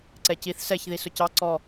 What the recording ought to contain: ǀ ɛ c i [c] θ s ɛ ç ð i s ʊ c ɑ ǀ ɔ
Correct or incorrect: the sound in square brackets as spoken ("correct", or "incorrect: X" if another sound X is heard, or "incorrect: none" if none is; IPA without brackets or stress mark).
incorrect: none